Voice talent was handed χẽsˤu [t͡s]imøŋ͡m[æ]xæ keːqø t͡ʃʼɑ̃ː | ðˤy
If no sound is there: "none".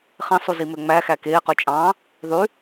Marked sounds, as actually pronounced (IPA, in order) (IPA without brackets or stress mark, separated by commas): z, æ